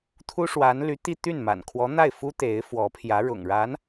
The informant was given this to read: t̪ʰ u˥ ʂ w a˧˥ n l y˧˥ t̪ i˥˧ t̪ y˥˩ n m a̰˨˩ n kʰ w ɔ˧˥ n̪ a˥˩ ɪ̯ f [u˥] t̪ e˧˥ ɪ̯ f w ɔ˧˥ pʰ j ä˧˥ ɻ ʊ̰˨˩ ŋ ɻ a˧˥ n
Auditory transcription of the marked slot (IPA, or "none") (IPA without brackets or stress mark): u˥